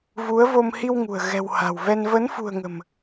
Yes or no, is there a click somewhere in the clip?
no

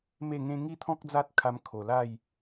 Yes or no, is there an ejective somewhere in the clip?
no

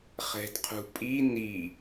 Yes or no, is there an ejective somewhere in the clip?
yes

